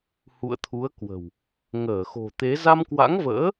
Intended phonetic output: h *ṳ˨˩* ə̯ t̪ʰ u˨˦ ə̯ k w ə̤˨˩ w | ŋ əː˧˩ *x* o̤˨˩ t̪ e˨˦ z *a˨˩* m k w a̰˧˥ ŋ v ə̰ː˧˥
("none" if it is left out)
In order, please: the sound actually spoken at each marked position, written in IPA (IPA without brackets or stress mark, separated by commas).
ṵ˧˨, x, a˧